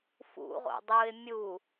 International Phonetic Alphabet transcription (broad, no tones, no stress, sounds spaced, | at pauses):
f ṵ ʁ o̰ dˤ u ɪ̯ mʲ u